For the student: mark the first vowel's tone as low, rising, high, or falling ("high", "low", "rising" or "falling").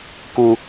low